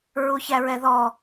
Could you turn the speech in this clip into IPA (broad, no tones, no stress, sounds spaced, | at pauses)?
ɹ u ç æ ɹ ɛ ð ɔ